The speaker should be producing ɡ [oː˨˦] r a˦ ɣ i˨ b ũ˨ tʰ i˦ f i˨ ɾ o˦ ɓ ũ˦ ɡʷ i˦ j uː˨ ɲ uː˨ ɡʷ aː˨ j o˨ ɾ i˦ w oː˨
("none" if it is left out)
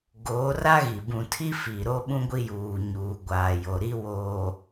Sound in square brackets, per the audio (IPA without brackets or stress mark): oː˨˦